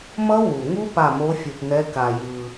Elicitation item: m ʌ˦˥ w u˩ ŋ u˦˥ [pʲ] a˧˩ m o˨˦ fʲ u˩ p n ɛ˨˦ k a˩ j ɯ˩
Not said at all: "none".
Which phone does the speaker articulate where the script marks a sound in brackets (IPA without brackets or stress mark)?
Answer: p